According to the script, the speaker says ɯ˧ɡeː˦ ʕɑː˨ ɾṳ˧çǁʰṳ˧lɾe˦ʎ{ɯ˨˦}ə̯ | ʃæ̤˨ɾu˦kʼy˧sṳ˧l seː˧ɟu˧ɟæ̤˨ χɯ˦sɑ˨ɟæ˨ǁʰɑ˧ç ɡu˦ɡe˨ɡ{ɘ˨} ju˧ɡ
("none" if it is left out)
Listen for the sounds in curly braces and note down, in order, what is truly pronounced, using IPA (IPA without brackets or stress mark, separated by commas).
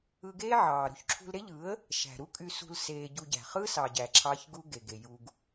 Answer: ɯ˨˦, e˨